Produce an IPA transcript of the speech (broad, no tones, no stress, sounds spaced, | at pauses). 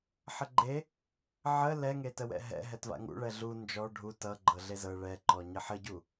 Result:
ħ ə ɡ͡ǃ e | ʕ ə l ɛ ŋ e t ə w ɛ̰ ɦ ɛ̰ ɦ ɛ t v a̰ ŋ ṵ ɭ ɛ ɮ u n d͡ʒ ɔ ɖʱ u t ʌ ɡ͡ǃ ɤ ɮ e z ɤ ɭ ɛ ǃ ɔ ɲ ə ħ ə ɟ u